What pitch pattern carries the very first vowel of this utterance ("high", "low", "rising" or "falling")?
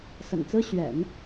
low